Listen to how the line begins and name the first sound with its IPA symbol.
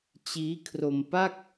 t͡ɕ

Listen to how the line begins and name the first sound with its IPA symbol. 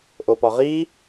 ʔ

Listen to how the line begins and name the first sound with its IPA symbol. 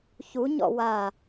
ç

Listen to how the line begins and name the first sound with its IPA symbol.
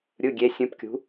ɾʲ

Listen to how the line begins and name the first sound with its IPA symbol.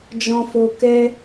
d͡ʒ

